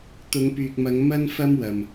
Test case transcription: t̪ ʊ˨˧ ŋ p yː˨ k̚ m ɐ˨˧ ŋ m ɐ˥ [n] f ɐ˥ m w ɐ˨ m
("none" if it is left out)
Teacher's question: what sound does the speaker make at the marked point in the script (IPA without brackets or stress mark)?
n